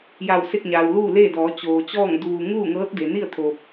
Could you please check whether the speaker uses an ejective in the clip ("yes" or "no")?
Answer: no